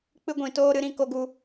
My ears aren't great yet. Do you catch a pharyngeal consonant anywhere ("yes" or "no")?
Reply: no